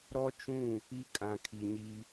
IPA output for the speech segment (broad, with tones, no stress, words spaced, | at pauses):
ɾɔ˦t͡ʃũ˦˨ | i˦kʼã˨kʰi˨ɲi˦